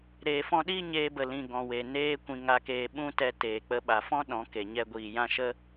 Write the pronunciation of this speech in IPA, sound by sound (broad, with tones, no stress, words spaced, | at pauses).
ɾeː˨fɔ̃˧ɗiː˦ ɲeː˧bə˨lĩ˨ ɡɔ̃˨we˨ neː˦kʷĩ˧ ŋa˧keː˧ ɓũ˦tɛ˧teː˨k͡pə˧ ɓa˨fɔ̃˦ ɗɔ̃˨˦ke˨ɲɛ˧ ɡʷiː˨jã˦ʃə˦